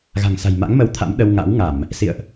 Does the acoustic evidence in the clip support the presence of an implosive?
yes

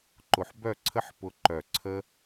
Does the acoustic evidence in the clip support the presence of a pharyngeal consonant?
yes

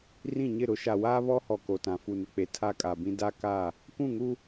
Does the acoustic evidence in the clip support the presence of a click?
no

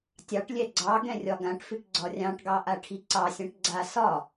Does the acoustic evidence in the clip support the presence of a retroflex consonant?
yes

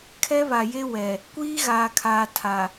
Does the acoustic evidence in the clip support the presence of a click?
no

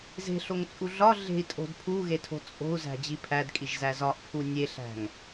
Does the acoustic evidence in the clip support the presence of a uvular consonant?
no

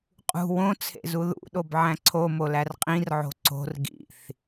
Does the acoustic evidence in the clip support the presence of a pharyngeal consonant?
yes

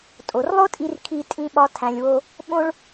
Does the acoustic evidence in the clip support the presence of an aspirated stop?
yes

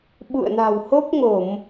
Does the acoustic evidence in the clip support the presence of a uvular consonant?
no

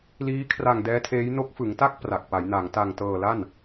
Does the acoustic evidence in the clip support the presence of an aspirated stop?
yes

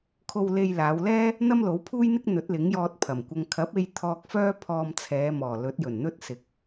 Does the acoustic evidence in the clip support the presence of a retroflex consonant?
no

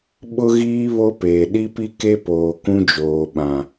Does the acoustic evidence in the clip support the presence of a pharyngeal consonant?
no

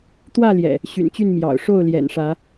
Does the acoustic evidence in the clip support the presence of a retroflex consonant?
yes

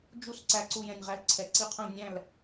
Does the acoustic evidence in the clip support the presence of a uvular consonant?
yes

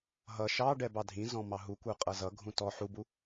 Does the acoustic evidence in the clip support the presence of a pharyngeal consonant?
yes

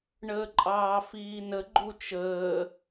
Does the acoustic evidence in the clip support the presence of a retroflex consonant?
yes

